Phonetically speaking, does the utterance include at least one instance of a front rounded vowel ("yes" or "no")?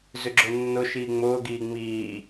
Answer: yes